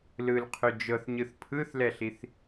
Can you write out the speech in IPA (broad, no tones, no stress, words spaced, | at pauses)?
lɯlqʰø d͡ʒɤθɲɯθ pʰɯθlɛɬiθ